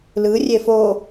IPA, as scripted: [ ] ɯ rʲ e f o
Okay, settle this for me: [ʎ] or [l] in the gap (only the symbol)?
l